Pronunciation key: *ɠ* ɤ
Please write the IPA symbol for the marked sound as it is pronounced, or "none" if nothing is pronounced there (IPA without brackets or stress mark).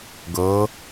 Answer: ɡ